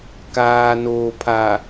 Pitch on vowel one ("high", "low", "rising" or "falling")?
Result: low